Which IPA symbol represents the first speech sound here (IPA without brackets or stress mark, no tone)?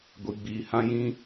ɡʷ